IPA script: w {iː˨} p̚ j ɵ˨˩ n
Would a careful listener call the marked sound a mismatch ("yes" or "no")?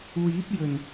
yes